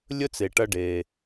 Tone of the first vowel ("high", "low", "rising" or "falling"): high